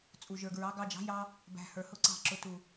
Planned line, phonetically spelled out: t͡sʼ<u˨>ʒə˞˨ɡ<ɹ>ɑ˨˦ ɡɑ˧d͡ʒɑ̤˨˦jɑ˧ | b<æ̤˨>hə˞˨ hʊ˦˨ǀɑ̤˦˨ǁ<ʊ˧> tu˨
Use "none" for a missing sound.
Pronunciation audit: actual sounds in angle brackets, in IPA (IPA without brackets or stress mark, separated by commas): u˨, ɹ, æ̤˨, ʊ˧